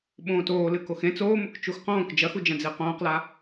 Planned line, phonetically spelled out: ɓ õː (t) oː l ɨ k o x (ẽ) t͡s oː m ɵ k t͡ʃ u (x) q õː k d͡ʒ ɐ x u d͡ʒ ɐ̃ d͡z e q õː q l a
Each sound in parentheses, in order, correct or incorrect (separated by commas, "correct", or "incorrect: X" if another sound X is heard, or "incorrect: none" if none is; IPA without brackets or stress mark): correct, correct, correct